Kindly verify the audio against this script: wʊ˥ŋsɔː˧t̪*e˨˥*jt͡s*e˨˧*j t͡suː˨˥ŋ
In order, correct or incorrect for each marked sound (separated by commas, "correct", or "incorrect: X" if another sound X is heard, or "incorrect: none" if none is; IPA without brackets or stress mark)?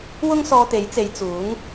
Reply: correct, correct